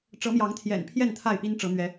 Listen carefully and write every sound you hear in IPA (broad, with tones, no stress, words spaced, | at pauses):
ʈ͡ʂɤ˨˦mjɑ˨˦ŋt̪ʰjɛ̰˨˩npʰjɛ˥˨n t̪ʰa˥˨ɪ̯pi˦nʈ͡ʂɤ˨˦ n̪ɥɛ˨˦